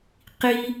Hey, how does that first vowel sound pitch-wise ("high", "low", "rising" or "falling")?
high